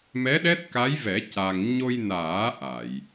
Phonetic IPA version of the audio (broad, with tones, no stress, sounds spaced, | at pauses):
m ɛ˧˥ ɗ ɛ˦˥ t̚ k a˧˥ j v ɛ˨˩˦ c a˧ ŋ ɲ o˧ j n aː˨˩˦ ʔ a˨˩˨ j